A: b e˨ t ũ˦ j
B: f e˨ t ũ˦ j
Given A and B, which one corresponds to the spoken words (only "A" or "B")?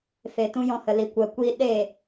B